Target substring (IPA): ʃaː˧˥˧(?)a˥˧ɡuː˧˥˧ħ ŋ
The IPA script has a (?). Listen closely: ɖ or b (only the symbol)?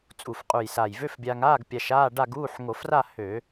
ɖ